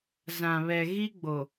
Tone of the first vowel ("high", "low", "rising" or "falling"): low